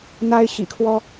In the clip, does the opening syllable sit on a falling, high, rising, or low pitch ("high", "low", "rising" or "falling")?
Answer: high